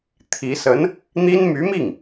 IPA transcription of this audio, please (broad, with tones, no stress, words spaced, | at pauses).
t̪ʰi˧˥ sə˧˥n | n̪i˥n my˧˥mi˥˩ŋ